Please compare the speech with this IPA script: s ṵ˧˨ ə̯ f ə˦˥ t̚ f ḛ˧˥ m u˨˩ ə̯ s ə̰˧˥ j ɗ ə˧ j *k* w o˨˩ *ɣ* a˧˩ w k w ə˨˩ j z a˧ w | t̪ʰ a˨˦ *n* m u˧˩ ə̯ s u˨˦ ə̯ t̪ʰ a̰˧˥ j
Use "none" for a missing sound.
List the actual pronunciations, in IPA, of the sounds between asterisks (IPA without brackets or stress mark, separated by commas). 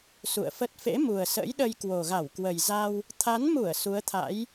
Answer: k, ɣ, n